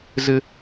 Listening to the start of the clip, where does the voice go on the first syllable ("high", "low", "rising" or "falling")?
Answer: high